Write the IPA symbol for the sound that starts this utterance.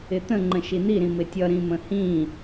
ɪ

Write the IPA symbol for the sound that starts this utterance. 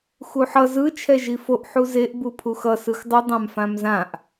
x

